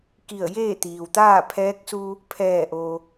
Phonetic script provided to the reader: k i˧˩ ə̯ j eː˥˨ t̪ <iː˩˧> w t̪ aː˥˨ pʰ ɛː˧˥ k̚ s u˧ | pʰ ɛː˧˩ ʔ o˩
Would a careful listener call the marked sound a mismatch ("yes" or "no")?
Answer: yes